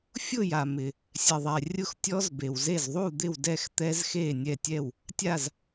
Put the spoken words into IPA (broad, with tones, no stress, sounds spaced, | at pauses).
fʲ ʊ˥˨ j a˨ m ɪ˨ | sʲ ɛ˨ ðˤ ɛ˨ rʲ ʊ˥˨ x tʲ ɔ˦˥ z b e˨ w z e˥˨ z ðˤ u˥˨ d̪ ɪ˥˨ w d ɛ˥˨ x t̪ ɛ˦˥ z x e˥˨ nʲ ɛ˥˨ tʲ ɛ˥˨ w | tʲ a˥˨ z